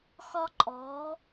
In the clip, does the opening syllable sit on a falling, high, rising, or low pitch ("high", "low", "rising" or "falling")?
high